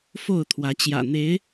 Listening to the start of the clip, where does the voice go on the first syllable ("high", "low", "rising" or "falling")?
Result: falling